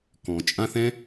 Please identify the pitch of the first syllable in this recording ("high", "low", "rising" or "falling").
low